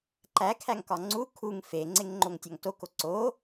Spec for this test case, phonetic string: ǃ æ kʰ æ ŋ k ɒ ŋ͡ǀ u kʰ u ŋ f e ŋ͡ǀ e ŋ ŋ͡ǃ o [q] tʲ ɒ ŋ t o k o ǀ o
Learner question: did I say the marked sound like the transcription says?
no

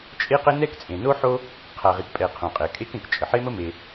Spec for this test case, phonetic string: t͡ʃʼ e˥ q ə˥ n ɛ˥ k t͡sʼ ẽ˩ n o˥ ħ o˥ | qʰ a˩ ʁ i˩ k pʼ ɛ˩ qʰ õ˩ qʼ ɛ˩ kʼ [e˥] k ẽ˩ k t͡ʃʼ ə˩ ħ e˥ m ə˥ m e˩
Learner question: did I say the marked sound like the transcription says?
yes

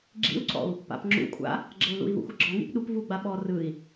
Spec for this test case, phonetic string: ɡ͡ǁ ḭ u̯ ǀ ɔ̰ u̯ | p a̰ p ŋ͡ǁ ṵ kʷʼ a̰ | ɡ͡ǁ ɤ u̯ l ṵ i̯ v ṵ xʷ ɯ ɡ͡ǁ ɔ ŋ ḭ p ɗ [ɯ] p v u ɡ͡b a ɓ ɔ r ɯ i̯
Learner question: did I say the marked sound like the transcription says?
no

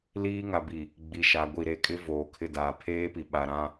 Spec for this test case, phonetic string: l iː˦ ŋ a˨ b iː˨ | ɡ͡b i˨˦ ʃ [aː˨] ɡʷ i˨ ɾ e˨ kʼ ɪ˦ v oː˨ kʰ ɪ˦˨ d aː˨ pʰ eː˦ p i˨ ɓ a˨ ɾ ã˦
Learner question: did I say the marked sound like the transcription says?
no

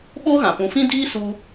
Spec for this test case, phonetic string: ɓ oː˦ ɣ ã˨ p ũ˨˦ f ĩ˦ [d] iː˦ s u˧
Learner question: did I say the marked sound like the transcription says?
yes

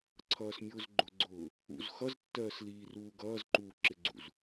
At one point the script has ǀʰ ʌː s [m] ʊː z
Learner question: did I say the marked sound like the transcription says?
no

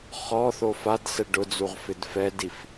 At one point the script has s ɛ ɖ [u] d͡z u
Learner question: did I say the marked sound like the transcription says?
no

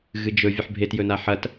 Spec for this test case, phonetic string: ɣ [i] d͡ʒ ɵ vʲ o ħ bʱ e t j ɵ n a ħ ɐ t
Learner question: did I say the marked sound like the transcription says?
no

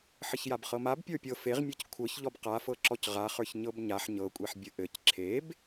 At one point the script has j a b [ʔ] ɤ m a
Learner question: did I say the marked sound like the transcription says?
no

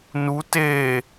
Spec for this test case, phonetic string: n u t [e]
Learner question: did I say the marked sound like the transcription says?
yes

